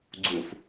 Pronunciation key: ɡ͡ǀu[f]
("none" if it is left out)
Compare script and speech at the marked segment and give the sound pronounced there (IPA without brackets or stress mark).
f